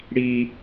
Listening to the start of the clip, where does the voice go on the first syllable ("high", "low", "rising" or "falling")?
high